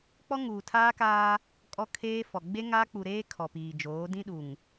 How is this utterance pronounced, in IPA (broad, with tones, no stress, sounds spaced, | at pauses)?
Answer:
k͡p ɔ˦ ŋ uː˨ tʰ aː˦ k aː˦ | kʼ ɔ˦ kʰ eː˦ f ɔ˨ ɡ͡b e˦ ŋ a˦ k͡p u˨ ɾ eː˦ kʰ ɔ˨ p iː˨ d͡ʒ oː˨˦ d ĩ˦ ɗ u˨ ŋ